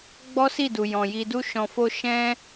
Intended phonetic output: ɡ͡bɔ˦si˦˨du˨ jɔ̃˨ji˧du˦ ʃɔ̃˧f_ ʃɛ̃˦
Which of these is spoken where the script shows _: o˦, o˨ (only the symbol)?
o˦